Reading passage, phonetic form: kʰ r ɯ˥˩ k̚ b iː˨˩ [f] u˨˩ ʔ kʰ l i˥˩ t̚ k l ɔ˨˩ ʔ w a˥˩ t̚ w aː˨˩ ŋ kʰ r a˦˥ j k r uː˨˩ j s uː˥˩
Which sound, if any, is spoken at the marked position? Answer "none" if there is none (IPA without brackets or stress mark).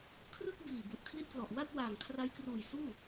b